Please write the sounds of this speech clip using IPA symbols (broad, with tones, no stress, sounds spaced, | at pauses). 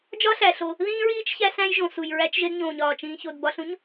d͡ʒ ɒ˦ ɬ æ˩ ɬ o˨ | ð ĩː˥ ɹ iː˥ t͡ʃ ç æ˦ s æ̃˦ j ʒ õ˨ s u˨ j ɹ æ˦ t͡ʃ ʒ e˦ d ɲ õː˨ ɲ ɒː˩ t͡ʃ ĩː˨ ç o˨ d b ɒ˦ ɬ ũ˥ ɲ